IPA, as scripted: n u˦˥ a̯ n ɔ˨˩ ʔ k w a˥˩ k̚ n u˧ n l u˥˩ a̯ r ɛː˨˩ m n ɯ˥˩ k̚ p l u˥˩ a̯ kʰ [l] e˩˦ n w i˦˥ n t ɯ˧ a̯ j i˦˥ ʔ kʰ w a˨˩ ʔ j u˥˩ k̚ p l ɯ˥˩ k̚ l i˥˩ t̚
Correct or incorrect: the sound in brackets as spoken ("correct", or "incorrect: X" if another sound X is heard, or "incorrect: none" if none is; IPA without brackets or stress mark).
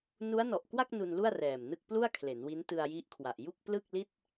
correct